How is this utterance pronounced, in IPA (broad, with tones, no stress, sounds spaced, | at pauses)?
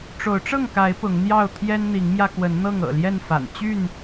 ʈ͡ʂ o˨˦ ʊ̯ ʈ͡ʂ ɤ˥˨ ŋ k a˨˦ ɪ̯ p ʊ˨˦ ŋ n̪ j ɑ˥˨ ʊ̯ t̪ʰ j ɛ˦ n n̪ i˨˦ ŋ m j ä˧ k w ə˨˦ n n̪ ɤ˥˨ ŋ ɤ̰˨˩ l j ɛ˥˨ n f a̰˨˩ n t͡ɕ y˥˨ n